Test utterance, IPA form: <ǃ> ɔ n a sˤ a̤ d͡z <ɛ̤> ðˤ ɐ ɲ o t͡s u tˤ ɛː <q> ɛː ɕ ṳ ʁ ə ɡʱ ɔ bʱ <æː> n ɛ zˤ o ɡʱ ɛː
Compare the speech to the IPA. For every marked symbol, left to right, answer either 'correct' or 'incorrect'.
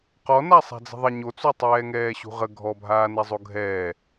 incorrect: q, incorrect: ə̤, incorrect: ŋ, incorrect: aː

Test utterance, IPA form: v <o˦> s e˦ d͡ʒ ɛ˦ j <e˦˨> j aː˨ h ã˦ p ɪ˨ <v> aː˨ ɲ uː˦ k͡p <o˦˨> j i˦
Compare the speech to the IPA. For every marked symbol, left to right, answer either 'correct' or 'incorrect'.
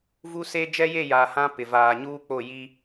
incorrect: u˦, correct, correct, correct

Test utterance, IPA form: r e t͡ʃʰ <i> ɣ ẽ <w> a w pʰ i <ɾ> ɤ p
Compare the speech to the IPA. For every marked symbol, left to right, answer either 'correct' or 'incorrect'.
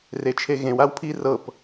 incorrect: e, correct, incorrect: r

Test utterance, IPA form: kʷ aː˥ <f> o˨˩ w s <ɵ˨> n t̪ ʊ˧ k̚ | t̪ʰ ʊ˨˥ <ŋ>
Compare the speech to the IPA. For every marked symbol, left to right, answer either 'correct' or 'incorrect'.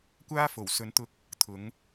correct, incorrect: ɵ˨˧, correct

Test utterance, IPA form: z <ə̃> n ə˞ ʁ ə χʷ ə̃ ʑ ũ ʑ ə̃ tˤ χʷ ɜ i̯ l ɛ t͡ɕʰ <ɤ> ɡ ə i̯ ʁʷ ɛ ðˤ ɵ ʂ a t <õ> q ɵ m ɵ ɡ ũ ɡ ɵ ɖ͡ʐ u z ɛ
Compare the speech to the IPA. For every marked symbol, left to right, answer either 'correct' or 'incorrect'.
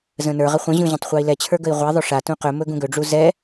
correct, incorrect: ə˞, incorrect: ũ

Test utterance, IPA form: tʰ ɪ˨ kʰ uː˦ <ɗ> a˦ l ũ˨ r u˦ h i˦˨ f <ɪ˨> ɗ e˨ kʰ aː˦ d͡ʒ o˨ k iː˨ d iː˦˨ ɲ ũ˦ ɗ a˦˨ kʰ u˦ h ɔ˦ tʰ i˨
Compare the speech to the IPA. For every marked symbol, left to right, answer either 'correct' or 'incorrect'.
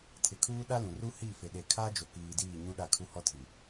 correct, correct

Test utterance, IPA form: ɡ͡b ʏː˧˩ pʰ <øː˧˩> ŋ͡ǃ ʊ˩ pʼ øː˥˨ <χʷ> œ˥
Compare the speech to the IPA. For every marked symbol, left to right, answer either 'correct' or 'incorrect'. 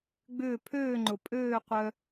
correct, incorrect: qʷ

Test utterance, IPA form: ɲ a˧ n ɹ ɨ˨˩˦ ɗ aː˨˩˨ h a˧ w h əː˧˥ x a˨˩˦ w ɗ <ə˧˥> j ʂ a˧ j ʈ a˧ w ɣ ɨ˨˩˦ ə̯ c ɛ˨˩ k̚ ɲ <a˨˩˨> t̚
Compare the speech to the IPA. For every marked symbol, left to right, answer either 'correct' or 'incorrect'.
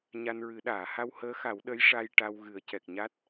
correct, incorrect: a˦˥

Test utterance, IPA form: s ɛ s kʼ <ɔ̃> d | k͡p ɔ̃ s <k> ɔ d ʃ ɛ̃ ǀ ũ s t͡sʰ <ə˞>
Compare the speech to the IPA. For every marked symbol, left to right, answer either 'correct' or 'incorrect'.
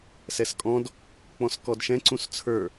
correct, correct, correct

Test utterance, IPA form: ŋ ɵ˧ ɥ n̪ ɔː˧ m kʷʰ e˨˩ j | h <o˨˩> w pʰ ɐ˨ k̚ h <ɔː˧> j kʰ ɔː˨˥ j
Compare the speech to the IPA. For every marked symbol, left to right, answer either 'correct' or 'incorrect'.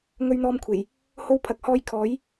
incorrect: o˧, correct

